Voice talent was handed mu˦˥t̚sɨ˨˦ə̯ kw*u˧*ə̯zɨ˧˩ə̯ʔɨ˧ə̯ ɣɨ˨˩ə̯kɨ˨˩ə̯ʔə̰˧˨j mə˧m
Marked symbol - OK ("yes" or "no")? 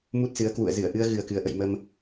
no